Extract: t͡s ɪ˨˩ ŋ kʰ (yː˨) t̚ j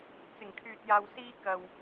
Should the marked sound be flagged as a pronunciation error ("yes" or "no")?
no